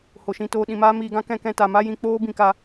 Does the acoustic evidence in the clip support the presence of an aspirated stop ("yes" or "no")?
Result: no